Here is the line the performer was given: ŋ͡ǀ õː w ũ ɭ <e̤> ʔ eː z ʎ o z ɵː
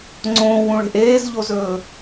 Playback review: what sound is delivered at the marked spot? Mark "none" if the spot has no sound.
e̤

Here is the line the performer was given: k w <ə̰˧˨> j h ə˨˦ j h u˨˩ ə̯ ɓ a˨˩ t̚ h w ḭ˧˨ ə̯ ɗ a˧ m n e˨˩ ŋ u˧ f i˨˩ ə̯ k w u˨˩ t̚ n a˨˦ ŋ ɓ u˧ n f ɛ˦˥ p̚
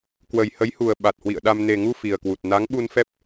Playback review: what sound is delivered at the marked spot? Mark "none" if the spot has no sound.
ə˨˩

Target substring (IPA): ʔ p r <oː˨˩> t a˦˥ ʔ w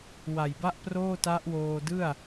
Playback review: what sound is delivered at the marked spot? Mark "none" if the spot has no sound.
oː˥˩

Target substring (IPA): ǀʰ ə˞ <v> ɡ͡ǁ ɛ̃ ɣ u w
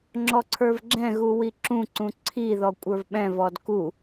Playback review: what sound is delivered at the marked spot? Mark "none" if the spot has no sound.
v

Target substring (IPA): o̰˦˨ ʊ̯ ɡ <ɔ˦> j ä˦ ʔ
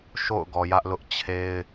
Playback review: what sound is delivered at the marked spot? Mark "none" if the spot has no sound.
ɔ˨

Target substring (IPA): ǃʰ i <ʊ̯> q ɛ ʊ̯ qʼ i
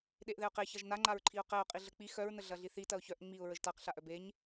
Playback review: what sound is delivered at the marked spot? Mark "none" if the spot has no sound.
ʊ̯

